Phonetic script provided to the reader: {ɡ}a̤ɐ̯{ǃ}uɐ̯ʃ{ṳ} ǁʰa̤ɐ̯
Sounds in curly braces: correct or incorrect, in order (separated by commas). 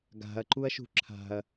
correct, correct, correct